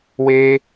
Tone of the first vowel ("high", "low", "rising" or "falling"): high